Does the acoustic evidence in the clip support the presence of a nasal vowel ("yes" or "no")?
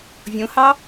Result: yes